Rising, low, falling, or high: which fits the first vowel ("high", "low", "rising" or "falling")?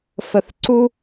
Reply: low